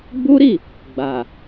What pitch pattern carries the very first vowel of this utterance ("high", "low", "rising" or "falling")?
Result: high